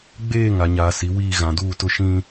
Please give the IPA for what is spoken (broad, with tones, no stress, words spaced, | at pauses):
ɡ͡beː˦˨ ŋa˨ɲaː˨si˨˦wiː˦˨ ɣã˨duː˦˨tʊ˦ʃĩ˦